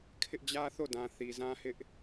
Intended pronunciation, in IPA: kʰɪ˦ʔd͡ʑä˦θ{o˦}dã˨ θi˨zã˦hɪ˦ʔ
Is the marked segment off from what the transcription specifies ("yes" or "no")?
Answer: yes